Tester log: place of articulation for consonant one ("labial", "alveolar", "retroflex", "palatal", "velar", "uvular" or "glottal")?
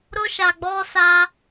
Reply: alveolar